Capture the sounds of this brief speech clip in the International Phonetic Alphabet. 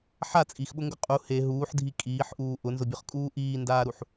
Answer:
ħa t͡sʼixɓʊŋɡʊ qʼu he ɦuːħdʱi kʼiːħʔuː ʔʊnzʊbʲʊχkʼuː ʔiːndaːɾuħ

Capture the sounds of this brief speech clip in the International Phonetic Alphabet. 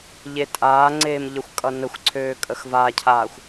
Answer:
ʎetʼaːŋ͡ǀeːm ʎəxʷkʼʌnəxʷǀʰøː kʼəxvacʰaːxʷ

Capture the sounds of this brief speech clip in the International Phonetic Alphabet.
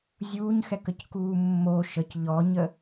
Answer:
zʲuːɲxɛkəckuː mːo ʃəc ʎɔɲə

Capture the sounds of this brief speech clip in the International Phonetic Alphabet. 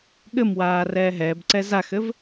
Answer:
ɠɘm waːrɛːɦɛːbǀɛ zaxɘv

